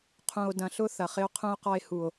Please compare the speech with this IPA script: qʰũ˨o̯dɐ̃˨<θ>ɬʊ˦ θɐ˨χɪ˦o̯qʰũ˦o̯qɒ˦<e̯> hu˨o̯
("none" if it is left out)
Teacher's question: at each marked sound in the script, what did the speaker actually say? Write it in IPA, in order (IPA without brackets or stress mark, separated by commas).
none, e̯